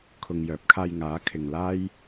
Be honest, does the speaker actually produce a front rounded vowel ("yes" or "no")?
yes